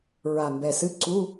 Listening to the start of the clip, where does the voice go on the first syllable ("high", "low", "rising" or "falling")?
low